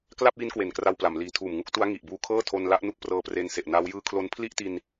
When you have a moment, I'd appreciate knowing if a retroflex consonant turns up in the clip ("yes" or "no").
no